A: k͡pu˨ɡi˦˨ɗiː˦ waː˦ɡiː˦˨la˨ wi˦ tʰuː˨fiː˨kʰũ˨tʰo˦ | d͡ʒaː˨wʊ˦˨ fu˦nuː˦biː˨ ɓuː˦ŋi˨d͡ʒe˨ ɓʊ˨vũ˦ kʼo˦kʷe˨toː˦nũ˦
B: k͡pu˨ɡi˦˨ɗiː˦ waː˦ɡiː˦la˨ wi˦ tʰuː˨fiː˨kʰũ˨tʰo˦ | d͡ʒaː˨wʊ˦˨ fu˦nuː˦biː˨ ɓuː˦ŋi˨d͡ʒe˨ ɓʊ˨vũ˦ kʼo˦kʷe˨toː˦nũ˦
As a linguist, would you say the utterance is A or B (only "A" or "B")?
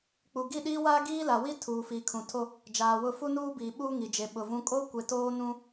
B